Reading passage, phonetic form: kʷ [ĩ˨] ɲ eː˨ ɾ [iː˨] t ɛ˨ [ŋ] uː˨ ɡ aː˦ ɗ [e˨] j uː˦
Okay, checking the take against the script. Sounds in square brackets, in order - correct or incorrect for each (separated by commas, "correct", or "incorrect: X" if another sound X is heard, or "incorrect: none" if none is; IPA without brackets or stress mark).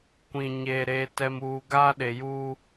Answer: correct, incorrect: eː˨, incorrect: m, correct